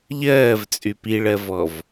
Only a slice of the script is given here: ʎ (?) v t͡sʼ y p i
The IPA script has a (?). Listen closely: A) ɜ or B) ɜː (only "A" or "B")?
B